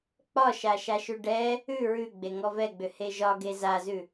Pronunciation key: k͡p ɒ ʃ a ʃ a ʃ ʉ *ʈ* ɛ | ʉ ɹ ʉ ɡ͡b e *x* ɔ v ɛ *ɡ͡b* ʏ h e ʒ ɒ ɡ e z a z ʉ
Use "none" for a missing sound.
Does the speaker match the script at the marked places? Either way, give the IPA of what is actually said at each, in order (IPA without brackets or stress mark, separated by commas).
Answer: ɖ, ŋ, ɡ͡b